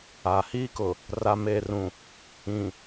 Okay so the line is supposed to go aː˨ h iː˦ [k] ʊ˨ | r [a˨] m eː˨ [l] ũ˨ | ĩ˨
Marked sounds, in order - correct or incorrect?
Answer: correct, correct, incorrect: r

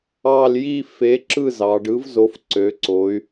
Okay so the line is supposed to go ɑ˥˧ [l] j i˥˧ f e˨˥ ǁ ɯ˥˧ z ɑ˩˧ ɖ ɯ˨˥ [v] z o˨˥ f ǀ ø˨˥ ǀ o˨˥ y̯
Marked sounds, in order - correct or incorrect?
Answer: correct, correct

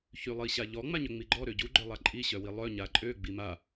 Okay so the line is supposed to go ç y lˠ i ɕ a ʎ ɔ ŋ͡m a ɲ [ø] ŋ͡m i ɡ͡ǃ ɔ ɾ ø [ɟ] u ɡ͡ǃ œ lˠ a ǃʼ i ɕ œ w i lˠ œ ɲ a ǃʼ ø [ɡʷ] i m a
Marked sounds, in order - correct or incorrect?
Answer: correct, correct, incorrect: ɡ͡b

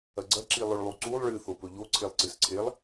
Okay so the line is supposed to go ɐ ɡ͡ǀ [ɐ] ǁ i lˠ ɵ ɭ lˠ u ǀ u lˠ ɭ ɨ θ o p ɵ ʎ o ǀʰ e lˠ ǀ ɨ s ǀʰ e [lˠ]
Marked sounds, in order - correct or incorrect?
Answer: correct, correct

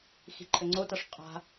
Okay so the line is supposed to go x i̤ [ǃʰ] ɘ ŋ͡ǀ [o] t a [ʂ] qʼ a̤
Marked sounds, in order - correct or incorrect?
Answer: correct, correct, correct

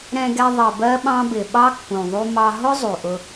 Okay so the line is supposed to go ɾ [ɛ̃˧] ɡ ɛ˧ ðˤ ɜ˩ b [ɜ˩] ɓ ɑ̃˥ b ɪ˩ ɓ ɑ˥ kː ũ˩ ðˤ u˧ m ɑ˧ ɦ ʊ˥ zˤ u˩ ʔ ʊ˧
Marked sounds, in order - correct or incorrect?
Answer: correct, incorrect: ɜ˥

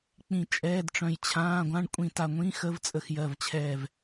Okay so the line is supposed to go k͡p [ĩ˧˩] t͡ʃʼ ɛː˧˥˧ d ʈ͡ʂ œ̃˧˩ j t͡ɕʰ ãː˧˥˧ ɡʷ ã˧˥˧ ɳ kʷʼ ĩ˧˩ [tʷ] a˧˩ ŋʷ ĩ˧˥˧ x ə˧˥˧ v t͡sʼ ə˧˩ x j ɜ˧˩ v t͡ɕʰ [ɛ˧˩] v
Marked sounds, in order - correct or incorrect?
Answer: correct, incorrect: t, correct

